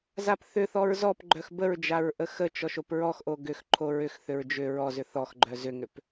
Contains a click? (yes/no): yes